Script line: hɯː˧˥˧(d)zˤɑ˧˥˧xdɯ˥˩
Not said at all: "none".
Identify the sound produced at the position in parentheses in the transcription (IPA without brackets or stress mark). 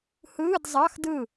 d